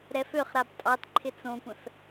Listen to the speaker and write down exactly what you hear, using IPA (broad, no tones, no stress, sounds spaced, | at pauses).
ɾ ɛ f ø χ ɾ a b tʼ ɑ t ǃʰ ɪ t͡s õ kʷ ɛ̃ f